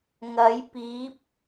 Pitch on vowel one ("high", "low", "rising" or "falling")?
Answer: rising